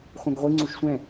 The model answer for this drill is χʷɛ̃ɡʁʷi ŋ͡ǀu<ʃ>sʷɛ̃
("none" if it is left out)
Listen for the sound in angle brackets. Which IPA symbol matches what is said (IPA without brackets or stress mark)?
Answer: ʃ